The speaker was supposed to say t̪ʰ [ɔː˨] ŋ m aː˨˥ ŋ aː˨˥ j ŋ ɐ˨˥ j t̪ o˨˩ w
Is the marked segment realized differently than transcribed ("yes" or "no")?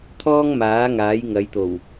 yes